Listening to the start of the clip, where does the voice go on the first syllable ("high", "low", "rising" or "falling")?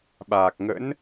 low